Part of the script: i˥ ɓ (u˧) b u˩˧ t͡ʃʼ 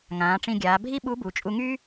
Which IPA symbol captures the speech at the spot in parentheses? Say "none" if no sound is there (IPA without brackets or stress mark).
u˧˥